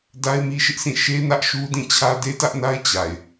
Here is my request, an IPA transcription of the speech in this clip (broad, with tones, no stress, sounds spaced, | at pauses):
d a˦ ɪ̯ m i˦ ʃ ɪ˦ ʔ sʰ ĩ˦˨ ʃ e˦ n ä˦ ʔ ʃ u˦ d ĩ˦˨ t͡ɕʰ ä˦ d e˦ t ä˦ ʔ n a˦ ɪ̯ t͡ɕ a˨ ɪ̯